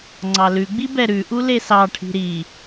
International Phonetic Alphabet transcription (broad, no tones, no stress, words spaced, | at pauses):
ŋ͡ǀɑlʉɡ͡bi bɛɾʉʔu lesɑʈʰi̤ ɾi